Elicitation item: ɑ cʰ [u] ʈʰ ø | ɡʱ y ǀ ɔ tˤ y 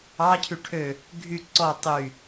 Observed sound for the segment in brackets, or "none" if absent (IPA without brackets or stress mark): y